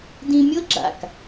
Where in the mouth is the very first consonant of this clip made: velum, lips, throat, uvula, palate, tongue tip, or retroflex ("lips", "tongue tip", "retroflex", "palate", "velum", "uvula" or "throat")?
tongue tip